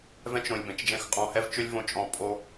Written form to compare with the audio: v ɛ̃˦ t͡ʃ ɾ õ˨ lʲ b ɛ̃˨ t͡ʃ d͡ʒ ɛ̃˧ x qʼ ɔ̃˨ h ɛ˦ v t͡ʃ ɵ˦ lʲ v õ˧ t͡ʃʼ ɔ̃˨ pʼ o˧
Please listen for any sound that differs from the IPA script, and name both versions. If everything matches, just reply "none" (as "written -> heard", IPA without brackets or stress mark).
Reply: none